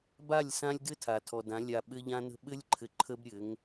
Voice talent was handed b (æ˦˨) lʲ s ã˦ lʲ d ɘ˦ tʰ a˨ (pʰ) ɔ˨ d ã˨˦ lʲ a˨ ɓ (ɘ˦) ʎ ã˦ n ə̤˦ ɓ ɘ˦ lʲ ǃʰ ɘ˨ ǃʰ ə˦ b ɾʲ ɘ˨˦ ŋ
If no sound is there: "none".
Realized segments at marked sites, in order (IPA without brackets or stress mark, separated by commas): a˦˨, tʰ, ɘ˦